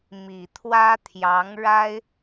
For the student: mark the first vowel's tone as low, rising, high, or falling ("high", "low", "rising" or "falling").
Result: low